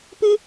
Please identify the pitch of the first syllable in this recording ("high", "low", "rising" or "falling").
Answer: high